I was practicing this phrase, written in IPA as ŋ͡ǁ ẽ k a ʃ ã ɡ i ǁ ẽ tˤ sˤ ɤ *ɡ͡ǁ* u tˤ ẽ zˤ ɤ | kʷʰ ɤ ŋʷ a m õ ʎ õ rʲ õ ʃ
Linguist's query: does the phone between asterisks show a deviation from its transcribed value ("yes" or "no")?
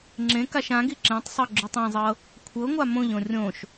no